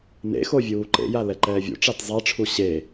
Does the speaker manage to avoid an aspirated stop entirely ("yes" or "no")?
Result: no